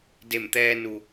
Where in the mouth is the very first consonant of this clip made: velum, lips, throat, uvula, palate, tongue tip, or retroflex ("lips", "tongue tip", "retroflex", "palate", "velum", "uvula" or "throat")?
tongue tip